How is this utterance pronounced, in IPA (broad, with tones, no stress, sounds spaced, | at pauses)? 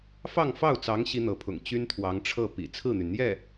f ɑ˥˧ ŋ f ɑ˥˩ ʊ̯ t͡s ɑ˧˥ ŋ ɕ i˥ n̪ ɤ˧˥ pʰ ʊ̰˨˩ ŋ t͡ɕ y˥ n t̪ʰ w ɑ˧˥ ŋ ʈ͡ʂʰ ɤ˥˩ p ḭ˨˩ t͡sʰ ɹ̩˥˩ n̪ y˩ n n̪ j ɛ˥˩